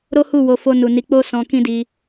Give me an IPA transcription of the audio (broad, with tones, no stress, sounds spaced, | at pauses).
ɾ o˦ h u˦˨ w o˨˦ f o˧ n u˨ n i˨˦ k͡p o˦ s ɔ̃˧ k ĩ˦ d i˧